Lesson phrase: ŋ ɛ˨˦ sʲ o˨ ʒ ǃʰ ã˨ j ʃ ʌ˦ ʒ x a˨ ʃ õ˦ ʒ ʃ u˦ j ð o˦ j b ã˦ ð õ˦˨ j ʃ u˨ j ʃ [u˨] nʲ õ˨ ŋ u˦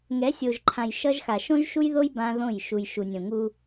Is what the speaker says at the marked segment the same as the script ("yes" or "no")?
yes